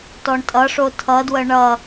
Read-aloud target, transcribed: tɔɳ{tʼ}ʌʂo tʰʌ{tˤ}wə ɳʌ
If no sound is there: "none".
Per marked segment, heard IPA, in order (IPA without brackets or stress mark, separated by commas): tʼ, d